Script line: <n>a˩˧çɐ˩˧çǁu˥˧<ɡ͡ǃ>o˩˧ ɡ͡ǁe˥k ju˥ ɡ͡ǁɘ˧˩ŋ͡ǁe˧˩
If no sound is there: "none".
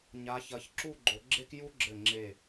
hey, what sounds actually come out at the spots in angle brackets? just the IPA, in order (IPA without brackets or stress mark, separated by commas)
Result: ɲ, ɡ͡ǃ